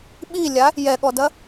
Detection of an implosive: present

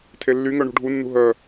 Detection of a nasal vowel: absent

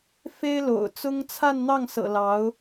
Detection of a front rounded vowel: absent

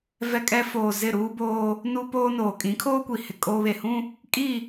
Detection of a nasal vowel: present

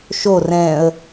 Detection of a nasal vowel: present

